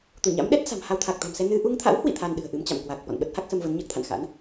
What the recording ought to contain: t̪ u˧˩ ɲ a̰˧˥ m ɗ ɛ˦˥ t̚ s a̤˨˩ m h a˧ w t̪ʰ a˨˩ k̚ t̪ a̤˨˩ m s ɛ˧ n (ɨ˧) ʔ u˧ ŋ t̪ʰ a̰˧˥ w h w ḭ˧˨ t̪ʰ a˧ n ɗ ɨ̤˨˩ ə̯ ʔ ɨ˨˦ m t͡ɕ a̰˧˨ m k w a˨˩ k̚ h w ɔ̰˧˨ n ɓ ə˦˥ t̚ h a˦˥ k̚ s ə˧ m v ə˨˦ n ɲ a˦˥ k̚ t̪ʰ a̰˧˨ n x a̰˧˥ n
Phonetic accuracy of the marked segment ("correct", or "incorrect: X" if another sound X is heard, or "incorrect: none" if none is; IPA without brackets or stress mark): correct